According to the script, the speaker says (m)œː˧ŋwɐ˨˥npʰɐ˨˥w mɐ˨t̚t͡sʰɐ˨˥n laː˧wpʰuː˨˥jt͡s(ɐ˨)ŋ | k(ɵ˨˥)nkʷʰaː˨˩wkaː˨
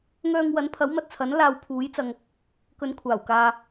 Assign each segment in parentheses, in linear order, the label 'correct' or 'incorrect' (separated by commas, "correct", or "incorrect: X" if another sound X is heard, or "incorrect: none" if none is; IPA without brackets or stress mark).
incorrect: ŋ, correct, incorrect: ɵ˨˧